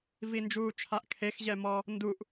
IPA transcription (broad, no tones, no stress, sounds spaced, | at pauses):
v i n d͡ʒ uː t͡ʃʰ a ʔ kʰ e x ʑ ɛ m ɔ | n d u ʔ